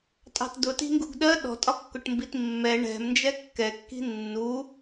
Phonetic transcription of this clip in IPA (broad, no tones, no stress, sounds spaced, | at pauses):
tʼ ɑ̤ t d ʊ t i̤ ŋ ɡ u ɡ ɗ ɜ ɗ ɔ̤ tʼ ɒ kː ʊ ʈ m b i t mː ɛ ɳ ɛ̤ m n d͡ʒ ɛ kː ɛ kː i̤ nː u